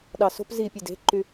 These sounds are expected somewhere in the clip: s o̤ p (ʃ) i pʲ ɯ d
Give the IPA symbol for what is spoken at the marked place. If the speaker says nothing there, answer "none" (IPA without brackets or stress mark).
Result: z